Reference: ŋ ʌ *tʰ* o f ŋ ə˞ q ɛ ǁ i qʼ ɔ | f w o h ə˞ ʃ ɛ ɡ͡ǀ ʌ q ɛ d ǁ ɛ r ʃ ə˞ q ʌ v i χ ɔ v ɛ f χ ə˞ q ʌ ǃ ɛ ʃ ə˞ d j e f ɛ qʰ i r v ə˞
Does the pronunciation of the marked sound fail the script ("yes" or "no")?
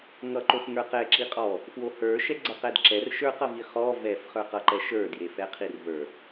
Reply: yes